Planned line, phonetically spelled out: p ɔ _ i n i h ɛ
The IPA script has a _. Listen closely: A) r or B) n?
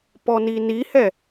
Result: B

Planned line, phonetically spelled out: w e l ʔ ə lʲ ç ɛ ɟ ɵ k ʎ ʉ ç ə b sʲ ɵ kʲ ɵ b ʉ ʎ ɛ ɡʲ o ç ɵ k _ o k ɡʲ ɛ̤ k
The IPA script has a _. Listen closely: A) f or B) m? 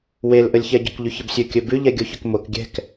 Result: B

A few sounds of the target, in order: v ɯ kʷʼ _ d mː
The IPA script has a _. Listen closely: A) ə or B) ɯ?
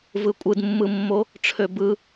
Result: B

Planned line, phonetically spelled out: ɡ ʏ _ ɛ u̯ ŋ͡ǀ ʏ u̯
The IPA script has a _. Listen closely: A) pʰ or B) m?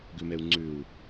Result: B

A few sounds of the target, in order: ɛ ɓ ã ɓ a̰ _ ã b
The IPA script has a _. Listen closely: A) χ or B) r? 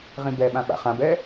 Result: A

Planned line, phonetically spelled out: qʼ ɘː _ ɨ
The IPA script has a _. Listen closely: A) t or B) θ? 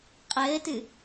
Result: A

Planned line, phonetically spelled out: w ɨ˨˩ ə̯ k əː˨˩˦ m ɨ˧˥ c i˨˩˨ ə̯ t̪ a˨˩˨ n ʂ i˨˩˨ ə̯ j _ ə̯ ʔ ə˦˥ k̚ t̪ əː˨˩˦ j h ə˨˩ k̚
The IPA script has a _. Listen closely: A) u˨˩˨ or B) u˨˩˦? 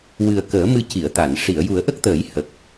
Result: B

